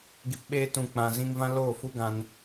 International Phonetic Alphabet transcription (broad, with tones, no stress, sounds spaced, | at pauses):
ɡ i˨ p ɓ eː˧ t ũ˨ k͡p ã˨ z ĩ˧ ŋ v ã˦ l oː˦˨ f u˦ ɡ ã˧ n